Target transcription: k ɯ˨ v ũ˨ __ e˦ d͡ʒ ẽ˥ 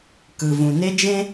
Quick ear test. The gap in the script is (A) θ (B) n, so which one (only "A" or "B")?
B